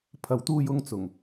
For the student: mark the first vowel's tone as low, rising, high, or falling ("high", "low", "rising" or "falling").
low